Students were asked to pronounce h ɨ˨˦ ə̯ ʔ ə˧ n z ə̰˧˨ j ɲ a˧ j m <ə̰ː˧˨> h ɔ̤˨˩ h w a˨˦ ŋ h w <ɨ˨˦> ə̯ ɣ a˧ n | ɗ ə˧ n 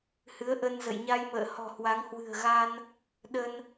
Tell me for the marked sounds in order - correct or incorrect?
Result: correct, incorrect

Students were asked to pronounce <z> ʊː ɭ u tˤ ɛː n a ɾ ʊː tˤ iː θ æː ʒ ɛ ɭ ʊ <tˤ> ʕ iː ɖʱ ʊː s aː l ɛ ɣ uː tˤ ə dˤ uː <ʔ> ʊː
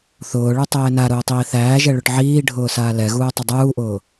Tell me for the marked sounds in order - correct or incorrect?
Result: incorrect, incorrect, correct

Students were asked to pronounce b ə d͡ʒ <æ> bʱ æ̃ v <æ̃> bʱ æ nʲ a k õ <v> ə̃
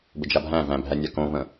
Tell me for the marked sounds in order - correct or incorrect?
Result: incorrect, correct, correct

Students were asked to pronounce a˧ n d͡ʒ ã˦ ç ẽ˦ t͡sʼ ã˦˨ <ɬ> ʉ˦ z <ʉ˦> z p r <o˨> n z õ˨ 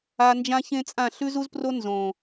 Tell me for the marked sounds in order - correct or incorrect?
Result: correct, incorrect, incorrect

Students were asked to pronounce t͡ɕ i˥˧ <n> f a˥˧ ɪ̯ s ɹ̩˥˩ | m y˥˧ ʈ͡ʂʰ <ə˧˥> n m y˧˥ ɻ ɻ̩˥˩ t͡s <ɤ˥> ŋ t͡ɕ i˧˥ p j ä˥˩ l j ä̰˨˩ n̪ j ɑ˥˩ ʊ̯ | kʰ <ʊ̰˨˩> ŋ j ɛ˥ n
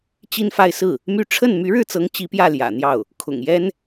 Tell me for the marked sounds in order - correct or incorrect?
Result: correct, incorrect, incorrect, correct

